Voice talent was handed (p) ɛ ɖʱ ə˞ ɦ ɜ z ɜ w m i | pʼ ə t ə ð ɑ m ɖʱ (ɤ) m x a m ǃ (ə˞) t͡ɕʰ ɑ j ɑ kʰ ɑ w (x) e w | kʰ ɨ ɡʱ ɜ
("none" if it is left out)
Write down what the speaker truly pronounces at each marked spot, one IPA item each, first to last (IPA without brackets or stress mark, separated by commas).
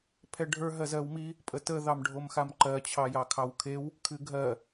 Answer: pʰ, o, ɜ, kʰ